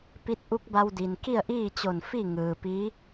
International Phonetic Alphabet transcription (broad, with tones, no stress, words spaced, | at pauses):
pi˧˥t̚ʔu˧˥k̚ba˧w di˩nki˥˨ə̯ʔiː˥˨t͡ɕo˧˩n fi˥˨ŋɯː˩pi˧˥